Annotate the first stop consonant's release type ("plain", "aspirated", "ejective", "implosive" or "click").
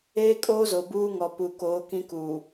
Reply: ejective